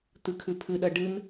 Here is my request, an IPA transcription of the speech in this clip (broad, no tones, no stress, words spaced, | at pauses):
t̪ɨkʰʉpʰɨɗɐ ɖɨn